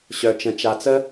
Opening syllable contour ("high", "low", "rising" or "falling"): low